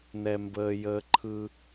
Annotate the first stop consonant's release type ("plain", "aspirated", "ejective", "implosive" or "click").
plain